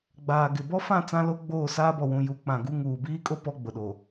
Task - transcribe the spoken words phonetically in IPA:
ɡ͡baː˨ ɡɪ˨bɔ˦fã˦˨ t͡sã˦lo˦ɡ͡boː˦˨ saː˦bɔ˨wũ˨ ju˨˦k͡pã˨ɡu˦ ŋuː˨biː˦kʼo˦ pɔ˦ɡ͡bʊ˨ɗo˨

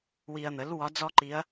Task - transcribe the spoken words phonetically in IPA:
wi˨ɐ̯n̪ə˩˥l wɒ˧˥d͡zɔ˥ǃi˧˥ɐ̯

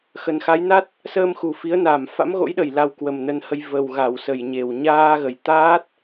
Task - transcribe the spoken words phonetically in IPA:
xə˨˩nxa˨˦jna˦˥t̚ | səː˧mxu˨˩ fi˨˦ə̯na˨˩m fa̰˧˥mɣo̰˧˥jɗə˨˩j la˧w kwə˨˩mnə˧nhə˧j və˨˩wɣa˧˩w sə˨˩jɲe˨˩w ɲaː˧ɣə˨˩j t̪aː˦˥t̚

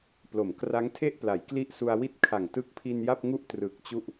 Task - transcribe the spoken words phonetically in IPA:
plo˩˦mkra˦˥ŋtʰe˥˩ʔpla˩˦j kli˥˩ʔsu˧a̯wi˥˩t̚ kʰa˨˩ŋ tɯ˦˥k̚pʰi˧n ja˥˩p̚ŋu˥˩ʔ trɯ˨˩k̚ t͡ɕu˥˩ʔ

